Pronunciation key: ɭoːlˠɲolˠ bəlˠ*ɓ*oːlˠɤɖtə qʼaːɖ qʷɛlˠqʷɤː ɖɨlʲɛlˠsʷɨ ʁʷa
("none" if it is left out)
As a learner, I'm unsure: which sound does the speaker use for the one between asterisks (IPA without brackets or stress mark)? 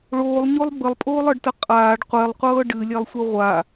pʼ